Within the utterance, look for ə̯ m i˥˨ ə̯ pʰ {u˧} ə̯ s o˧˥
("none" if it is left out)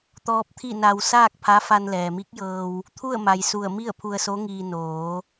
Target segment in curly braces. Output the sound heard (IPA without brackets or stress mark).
u˧